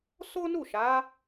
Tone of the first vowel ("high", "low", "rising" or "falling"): high